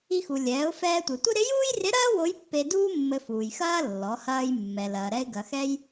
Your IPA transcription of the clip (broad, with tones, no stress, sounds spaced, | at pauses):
i˧ x u˩ lʲ ɛː˩˧ ʊ̯ f ɛː˧ tʷ e˩ tʷ ɪ˥ ɾ ɪ˧˥ j uː˥ j r ɪ˧˥ ɾ ɐː˥ w o˧˥ j pː e˧ d uː˥ mː ɘ˧ f uː˩ j x ɐː˥ lː ɔ˩˧ h ɐː˧ j mː ɛ˩ l ɐː˩ ɾ ɛ˧ ɪ̯ ɡ ɐ˩ x ɛ˧ j